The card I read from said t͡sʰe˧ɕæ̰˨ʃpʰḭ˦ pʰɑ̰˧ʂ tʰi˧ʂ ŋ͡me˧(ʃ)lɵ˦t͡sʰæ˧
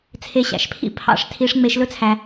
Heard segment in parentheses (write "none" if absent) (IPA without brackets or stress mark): ʃ